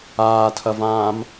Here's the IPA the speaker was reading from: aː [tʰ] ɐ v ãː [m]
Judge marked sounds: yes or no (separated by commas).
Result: yes, yes